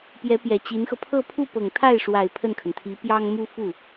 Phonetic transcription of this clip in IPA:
p j ɛ˧˥ p j ɛ˨˩ t͡ɕ i˧˥ n x ɤ˧ pʰ ɤ˥˧ pʰ u˥˩ p ɤ˨˩ ŋ t̪ʰ a˥˩ ɪ̯ ʂ w a˨˩ ɪ̯ pʰ ə˥˩ n kʰ ə˩ n t̪ʰ i˧˥ p j ɑ˥ ŋ m u˥ f u˥˩

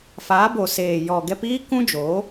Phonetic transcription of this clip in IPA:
f aː˨˦ b o˨ s eː˨ j ɔ˨ ɡ ɛ˧ p iː˦ k ũ˦ d͡ʒ oː˨˦

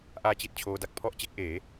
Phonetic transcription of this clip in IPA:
ʔ aː˥˩ t͡ɕ i˥˩ t̚ t͡ɕʰ oː˦˥ d a˨˩ k̚ pʰ ɔ˥˩ ʔ t͡ɕ e˦˥ k̚ ʔ eː˩˦

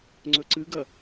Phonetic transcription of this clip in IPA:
ŋ͡ǀ ɵ ǀ ɨ ɡ ɐ

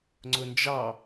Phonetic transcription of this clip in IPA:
ŋ͡ǀ ʊ n d͡ʒ ɑ

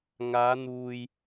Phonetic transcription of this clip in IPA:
ŋ aː˨˧ n̪ uː˨ j

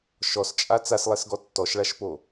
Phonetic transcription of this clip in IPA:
ʃ ɔ s t͡ʃʼ a t͡s a s lˠ ɛ s ɡ ɔ tː ɔ ʃ ɭ a ʃ p o

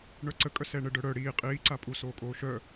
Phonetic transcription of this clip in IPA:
ɳ œ ǀ ə kʼ œ s ɛ ɳ ə ɖ œ ɽ œ ɽ iː qʼ iː ǀ a pʼ u s oː kʼ oː ʃ œ

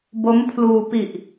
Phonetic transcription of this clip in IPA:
b o˦˥ m pʰ l uː˧ p i˨˩ ʔ

